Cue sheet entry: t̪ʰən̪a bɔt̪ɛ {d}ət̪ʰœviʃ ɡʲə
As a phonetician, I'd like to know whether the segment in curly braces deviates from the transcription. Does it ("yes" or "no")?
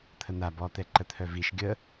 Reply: yes